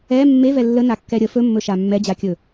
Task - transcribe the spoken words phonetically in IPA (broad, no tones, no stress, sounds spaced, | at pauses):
ɛ mː e v ɛ lː ə n a kː ɛ ɾʲ ə f ɵ mː ɵ ʃ a mː ɛ d͡ʑ a kʲ ɵ